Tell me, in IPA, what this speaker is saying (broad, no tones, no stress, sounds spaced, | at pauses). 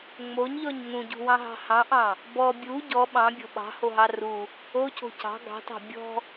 ŋ͡m o ɲ ʎ ɔ ɲ ŋ ũ ɟ ṳ w ɑ̃ ɦ ɑ̤ h ɑ̃ ʔ ɑ̃ | b ɔ bʲ u ɟ ɔ ɓ ɑ̃ bʲ ɔ̤ ɓ ɑ̤ h o ɦ ɑ r u | o c o̤ c ɑ̤ ɡ ɑ̤ t ɑ̤ bʲ ɔ̤